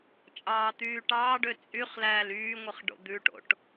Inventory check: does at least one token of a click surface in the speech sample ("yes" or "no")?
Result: no